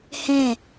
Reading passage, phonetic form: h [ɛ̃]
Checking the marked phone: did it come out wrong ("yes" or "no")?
no